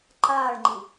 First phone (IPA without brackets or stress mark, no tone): ǃ